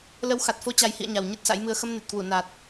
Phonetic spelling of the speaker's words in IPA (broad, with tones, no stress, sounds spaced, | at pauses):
l ə˨˦ w x a˨˩ t̚ f o˨˦ t͡ɕ a˨˩ j h ḭ˧˨ ə̯ ɲ a˨˩ w ɲ ɨ˦˥ t̚ s a̰˧˥ j m ɨ˧ ə̯ x ə˧ m n e˨˩ t̚ k w u˧˩ n a˨˩ t̚